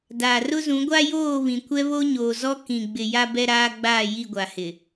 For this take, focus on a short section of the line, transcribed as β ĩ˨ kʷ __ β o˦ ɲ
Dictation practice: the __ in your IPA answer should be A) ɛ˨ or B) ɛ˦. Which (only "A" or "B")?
B